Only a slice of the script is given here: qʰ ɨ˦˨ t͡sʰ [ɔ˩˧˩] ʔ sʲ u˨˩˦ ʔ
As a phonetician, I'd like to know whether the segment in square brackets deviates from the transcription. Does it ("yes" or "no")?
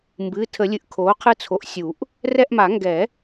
yes